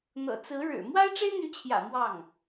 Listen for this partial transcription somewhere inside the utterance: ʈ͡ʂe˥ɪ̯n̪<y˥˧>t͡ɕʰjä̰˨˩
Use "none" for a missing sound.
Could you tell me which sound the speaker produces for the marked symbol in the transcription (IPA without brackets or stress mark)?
y˧˥